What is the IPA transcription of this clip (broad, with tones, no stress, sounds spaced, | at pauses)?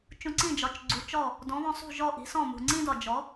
t͡ʃ ũ˧ ǀ ĩ˥˩ d͡ʒ ɒ˩˥ t͡ʃ ɡ͡ǀ u˩˥ t͡ʃ ɔ˥˩ | d ɔ̃˩˥ β ɔ̃˧ sˤ ṳ˥˩ ʒ ɔ˥˩ ʔ i̤˩˥ s ɔ̃˥˩ m ṳ˩ ŋ͡ǀ ĩ˥ d ɒ˩ d͡ʒ ɔ˩˥